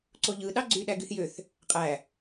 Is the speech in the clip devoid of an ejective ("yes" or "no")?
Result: no